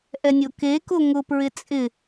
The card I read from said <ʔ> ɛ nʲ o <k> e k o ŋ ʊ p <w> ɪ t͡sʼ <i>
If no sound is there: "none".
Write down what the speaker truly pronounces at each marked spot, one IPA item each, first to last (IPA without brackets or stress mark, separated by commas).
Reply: ʔ, k, ɹ, ɪ